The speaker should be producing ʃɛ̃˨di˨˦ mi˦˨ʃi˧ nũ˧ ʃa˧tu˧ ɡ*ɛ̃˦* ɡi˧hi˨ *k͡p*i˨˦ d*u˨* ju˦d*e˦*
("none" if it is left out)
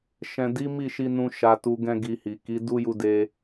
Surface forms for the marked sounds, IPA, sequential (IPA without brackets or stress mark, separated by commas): ɛ̃˦, k, u˦, e˦